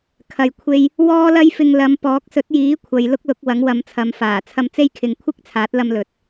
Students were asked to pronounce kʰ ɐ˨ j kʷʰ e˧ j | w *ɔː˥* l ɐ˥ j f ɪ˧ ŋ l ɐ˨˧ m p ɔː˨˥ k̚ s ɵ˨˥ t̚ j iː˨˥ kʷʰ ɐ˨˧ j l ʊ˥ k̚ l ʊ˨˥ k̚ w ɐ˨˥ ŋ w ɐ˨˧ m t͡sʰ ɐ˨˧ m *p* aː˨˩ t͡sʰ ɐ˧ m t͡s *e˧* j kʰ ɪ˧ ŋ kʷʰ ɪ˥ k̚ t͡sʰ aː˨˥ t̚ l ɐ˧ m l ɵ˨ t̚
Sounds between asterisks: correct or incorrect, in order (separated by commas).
correct, incorrect, incorrect